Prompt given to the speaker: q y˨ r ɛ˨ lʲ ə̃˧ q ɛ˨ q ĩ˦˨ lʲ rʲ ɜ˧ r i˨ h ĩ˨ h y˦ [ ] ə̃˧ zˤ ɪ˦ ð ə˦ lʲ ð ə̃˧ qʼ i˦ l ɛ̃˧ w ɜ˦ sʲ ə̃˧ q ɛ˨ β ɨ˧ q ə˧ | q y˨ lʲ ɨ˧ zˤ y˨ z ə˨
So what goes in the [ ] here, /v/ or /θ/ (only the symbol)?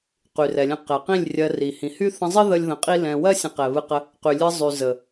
θ